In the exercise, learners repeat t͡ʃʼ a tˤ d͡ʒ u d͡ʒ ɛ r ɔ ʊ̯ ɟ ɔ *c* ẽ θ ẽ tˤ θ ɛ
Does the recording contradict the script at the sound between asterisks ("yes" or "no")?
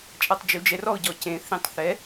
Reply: no